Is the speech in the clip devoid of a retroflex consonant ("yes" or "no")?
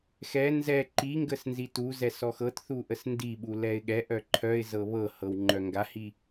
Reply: yes